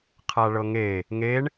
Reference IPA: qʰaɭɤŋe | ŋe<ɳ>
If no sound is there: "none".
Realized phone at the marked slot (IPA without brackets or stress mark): ɳ